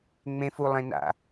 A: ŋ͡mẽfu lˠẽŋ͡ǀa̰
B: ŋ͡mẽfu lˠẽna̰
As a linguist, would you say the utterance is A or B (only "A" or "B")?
B